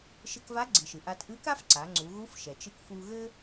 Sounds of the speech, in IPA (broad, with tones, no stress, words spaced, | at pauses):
ʃɘ˧kva˧˥ɡ͡ǀi˩ʃɨ˩ ʔa˧tʔɨ˧˥ka˥fǀa˩˧ ŋ͡ǀu˩˧ɣu˧˥f ʃɛ˩t͡ʃɨ˧kfu˧ɣɘ˥